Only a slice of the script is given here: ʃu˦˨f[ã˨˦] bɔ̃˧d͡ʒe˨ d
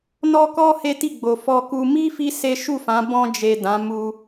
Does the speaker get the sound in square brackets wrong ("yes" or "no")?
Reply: no